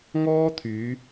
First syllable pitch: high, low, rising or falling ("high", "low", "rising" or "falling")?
high